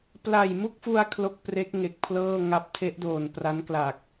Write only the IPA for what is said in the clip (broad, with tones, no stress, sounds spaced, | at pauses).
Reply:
p l a˨˩ j m u˥˩ k̚ f u˧ a̯ kʰ l o˥˩ k̚ p r e˦˥ k̚ ŋ e˨˩ k̚ pʰ l ɤː˥˩ ŋ a˦˥ p̚ tʰ e˦˥ ʔ d oː˨˩ n p r a˦˥ n k l a˨˩ k̚